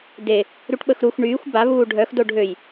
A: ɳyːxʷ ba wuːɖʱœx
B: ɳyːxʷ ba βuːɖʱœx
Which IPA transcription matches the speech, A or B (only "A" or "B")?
B